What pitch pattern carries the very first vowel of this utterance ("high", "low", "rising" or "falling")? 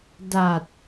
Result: low